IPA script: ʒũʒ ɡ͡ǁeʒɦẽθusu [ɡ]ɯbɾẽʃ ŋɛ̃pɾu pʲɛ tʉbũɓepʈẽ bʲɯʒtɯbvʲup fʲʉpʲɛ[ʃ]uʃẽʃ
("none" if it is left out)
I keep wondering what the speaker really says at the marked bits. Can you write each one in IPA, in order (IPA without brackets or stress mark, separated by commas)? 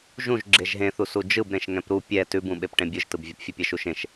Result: d͡ʒ, ʃ